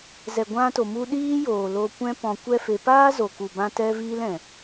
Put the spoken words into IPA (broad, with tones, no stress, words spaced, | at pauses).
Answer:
zɛ˨ɡʷã˧to˨mu˧ ɗiː˦joː˨lo˧kʷɛ̃˦ pɔ̃˧kʷɛ˦fe˧ paː˦zo˨ku˨bã˧ tɛ˦viː˦l ɛ̃˨